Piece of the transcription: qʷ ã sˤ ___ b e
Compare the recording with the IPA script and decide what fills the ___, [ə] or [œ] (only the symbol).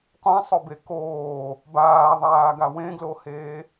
œ